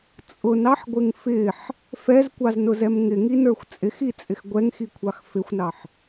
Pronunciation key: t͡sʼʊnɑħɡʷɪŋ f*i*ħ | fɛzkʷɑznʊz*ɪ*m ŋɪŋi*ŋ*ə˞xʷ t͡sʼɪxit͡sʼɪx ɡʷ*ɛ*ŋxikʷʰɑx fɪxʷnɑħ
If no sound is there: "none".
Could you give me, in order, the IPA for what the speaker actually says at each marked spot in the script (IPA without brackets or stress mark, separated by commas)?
ɪ, ɛ, n, ɛ